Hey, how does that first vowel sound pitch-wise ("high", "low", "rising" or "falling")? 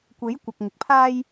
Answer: rising